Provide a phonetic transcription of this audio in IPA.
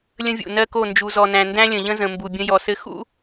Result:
lʲ ə̃˦ vʲ ṵ˨ n ɜ˦ k o˦˨ n d͡ʒ u˨ z ɔ˨ n æ̃˨ n d æ̃˦ lʲ ə̃˨ ʎ ə̃˦ z ə̃˨ m b u˨ bʲ ə̃˦ j ɔ˨ s ɘ˦ x ṵ˦

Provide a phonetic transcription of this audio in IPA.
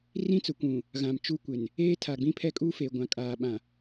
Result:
r ĩ˦ t͡s ʊ˨ kʷ ũ˨ | ɣ ã˨ m t͡ʃ u˦ kʷ ɪ˨ n | eː˦ tʰ a˨ ɡ͡b ĩ˦ pʰ ɛ˦ kʼ uː˦ f eː˨ ɡʷ ã˨ kʼ aː˨ ɓ ã˨

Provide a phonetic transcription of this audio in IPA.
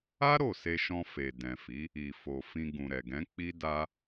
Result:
a˦ ɾ o˦˨ s e˧ ʃ ɔ̃˧ f e˨ d ɛ̃˨ f i˨˦ | i˨ f o˨ f ĩ˧ ɡ ũ˨ ɾ ɛ˨ ɡ ɛ̃˨˦ k͡p i˦ d a˦

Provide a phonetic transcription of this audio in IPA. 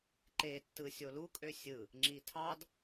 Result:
ǃ e tː ɯ sʲ o l u kʼ ø sʲ ɯ | ŋ͡ǁ i tʰ ɑ d

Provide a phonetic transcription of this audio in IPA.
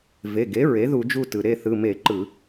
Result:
v e˩˧˩ ɡ e˩˥ ɹ e˩˥ ð u˧˩˧ d͡ʒ u˦˨ t ɯ˩ ɾ e˦˨ θ ɯ˩˧˩ m e˧˩˧ ǃ ɯ˧˩˧

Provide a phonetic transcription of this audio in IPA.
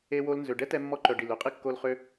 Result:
e˧ w o˧ l n z ø˨ ɖ ɛ˦ t ɛ˧ mː ɔ˧ ǃ œ˨ ɖ i˨ l ø˧ qʼ i˦ kː o˧ l χ ø˦

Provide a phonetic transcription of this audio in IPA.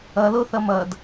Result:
ʌ l o θ ʌ m ʌ d

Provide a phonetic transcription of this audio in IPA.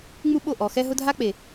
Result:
ŋ͡m u˦ ɓ o˦˨ ʔ ɔ˨ x ɛ˦ ɦ ʊ˦ dʱ a˦ k͡p e˨

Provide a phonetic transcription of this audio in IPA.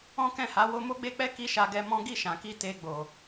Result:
ɔ̃˦ k ɛ̃˦˨ h a˨˦ w o˧ m o˦ ɡ͡b e˦ k͡p ɛ˦ k i˦ ʃ a˧ ɡ ɛ˧ m ɔ̃˦ ɡ i˦˨ ʃ ã˨ k i˧ t e˧ ɡ͡b o˨

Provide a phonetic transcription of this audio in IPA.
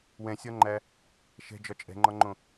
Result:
w ɛ̃ sʲ ɒ ŋ͡ǃ æ | ʃ ɛ̤ d͡ʒ ɒ t͡ʃʼ ɛ̤ ŋ͡ǃ ɒ ŋ͡ǃ õ

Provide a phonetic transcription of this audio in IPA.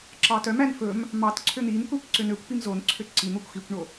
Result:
ǁ ɑ t œ m æ n f ɵ m | m ɑ t ǀʰ ø n̪ i m kʷ æ kʷ ǀ ø n ø kʷ p i m z o n ǀʰ ø ǀ i n̪ o kʷ x i kʷ ɳ o

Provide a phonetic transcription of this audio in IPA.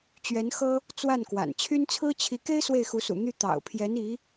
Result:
t͡ɕ ɥ ɛ˧˥ n x ɤ˥ | t͡s w a˥˩ n k w a̰˨˩ n t͡ɕʰ y˥ n t͡sʰ ɹ̩˥ t͡ɕʰ i˧˥ k e˥ ɪ̯ s w e˥˩ ɪ̯ x u˧˥ s ṵ˨˩ n̪ y˥˩ t̪ ɑ̰˨˩ ʊ̯ pʰ j ɛ˧˥ n i˧˥

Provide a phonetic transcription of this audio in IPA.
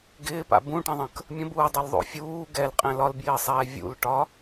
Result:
ɡ ɪː p a̰ b ũ ʈ ə̃ ðˤ ə̃ k | mʲ ə̃ b uː dˤ ʌ l ðˤ o̰ fʲ uː ɡ ɛ l qʼ ɛ̃ l ɒ l b j ɪː sˤ ɛː vʲ ṵ l ʈ ɒ

